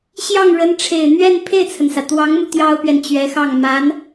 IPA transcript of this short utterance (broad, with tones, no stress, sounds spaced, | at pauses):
ɕ j ɑ˥˩ ŋ ɻ ə˧˥ n ʈ͡ʂʰ e˨˩ ɪ̯ n̪ ɥ ɛ˥˧ n pʰ e˥˩ ɪ̯ t͡sʰ ə˩ n s ä˩ t̪ w ɑ˧˥ ŋ m u˧ t̪ j ɑ˥ ʊ̯ p ɥ ɛ˨ n t͡ɕ ɥ ɛ˧˥ x ɑ˥˩ ŋ m a˧˥ n